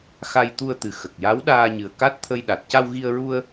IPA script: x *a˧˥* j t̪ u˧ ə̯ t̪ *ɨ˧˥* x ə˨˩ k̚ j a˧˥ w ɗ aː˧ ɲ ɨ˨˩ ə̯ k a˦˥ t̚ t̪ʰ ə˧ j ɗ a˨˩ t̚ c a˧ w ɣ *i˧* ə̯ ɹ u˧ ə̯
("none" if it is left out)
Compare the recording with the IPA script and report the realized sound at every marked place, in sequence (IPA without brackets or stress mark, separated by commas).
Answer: a˧, ɨ˨˩, i˧